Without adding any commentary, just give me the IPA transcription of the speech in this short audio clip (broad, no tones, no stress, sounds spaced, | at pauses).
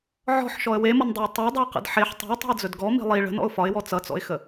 ʕ ɔ̤ ħ ʃ ɔ ə̯ w e m ʌ n dˤ e ə̯ tˤ e dˤ ʌ ɪ̯ q ə̰ d ħ e ħ tˤ i̤ ə̯ tˤ i̤ ə̯ d͡z ɵ d ɡ ɔ m i̤ lˠ i ɭ ə̤ n ɔ̰ ʊ̯ f ɒ ɪ̯ w ɔ t͡s ʌ t͡s ɔ̰ ɪ̯ x ə